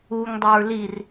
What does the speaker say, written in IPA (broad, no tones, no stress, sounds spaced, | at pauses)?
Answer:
u ŋ dˤ e ɹ l i r